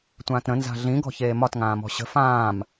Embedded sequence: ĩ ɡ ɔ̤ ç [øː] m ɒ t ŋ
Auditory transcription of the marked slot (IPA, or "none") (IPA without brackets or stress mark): eː